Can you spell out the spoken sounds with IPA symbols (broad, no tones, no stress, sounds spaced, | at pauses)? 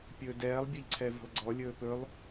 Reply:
pʲ ɵː d ɛː lˠ bʲ ɵ ʎ ǀʰ ɛ v ə̤ lˠ ɡ͡ǀ ɔ lʲ ɵː p ɵ lˠ